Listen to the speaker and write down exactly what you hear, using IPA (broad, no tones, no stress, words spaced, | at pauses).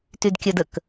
tydkʲœdək